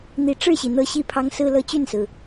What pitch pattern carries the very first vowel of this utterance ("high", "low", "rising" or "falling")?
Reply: rising